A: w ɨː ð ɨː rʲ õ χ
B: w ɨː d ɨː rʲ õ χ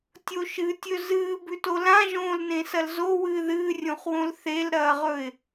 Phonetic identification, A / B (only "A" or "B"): A